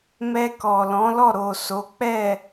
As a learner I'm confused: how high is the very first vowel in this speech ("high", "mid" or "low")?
mid